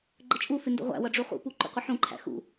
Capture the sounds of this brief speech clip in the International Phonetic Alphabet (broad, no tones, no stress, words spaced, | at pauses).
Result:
ɡ͡ǃət͡ʃʼufɪ ndə̰ʁʷæ̰wʌ ɖ͡ʐuχṵpu ǃṵqʷɪħũǃʰæ̰ xṵ